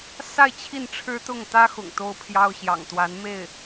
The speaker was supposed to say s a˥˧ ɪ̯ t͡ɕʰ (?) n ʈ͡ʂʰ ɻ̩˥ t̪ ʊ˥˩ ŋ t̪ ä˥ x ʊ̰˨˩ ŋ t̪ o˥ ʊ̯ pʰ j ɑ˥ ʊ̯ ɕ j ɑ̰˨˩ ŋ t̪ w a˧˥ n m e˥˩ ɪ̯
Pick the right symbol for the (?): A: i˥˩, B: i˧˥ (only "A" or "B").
A